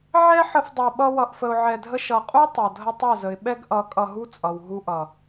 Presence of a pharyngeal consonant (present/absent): present